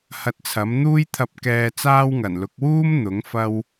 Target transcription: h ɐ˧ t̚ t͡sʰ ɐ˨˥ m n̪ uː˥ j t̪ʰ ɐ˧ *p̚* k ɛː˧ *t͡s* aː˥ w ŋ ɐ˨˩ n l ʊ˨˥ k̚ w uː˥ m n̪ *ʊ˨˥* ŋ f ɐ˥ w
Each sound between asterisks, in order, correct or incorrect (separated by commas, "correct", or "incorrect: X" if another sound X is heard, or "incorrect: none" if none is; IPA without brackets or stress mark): correct, correct, correct